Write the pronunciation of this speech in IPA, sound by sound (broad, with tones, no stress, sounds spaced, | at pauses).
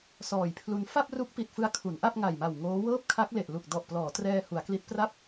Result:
s ɔː˨˩ j pʰ l u˧ n f a˥˩ p̚ r u˦˥ k̚ p i˨˩ t̚ f ɯ˧ a̯ kʰ u˩˦ n ʔ a˥˩ p̚ ŋ a˨˩ j m a˨˩ w ŋ oː˦˥ w ɤː˥˩ p̚ kʰ a˦˥ k̚ l e˨˩ ʔ l u˨˩ k̚ d ɔ˨˩ ʔ p l ɔː˩˦ t r ɛː˧ h u˩˦ a̯ k l i˦˥ t̚ p r a˥˩ p̚